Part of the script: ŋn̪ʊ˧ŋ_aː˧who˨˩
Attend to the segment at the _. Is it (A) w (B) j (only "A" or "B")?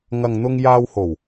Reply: B